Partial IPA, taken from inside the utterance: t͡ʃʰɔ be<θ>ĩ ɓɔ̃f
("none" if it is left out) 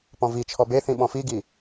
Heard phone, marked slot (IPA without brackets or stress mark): θ